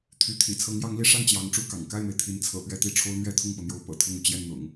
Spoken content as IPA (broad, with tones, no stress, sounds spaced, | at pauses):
t̪ʰ y˧˥ t̪ʰ ḭ˨˩ t͡sʰ ɤ˧˥ ŋ j ɑ˧˥ ŋ l i˧˥ ʂ a˥˩ n t͡ɕ j ɑ˧˥ ŋ ʈ͡ʂ u˥˩ k ɑ̰˨˩ ŋ k a˥˩ ɪ̯ m e˩ ɪ̯ t̪ʰ i˧˥ n t͡sʰ ɤ̰˨˩ p ɥ ɛ˥˧ t̪ i˥˩ ʈ͡ʂʰ o˥ ʊ̯ n̪ ɥ ɛ˥ t̪ʰ ʊ˥˩ ŋ p ɤ˩ n̪ j o˧˥ ʊ̯ p ɤ̰˨˩ t̪ʰ ʊ˥˩ ŋ u˩ t͡ɕ j ɛ˥˩ n n̪ ʊ̰˨˩˦ ŋ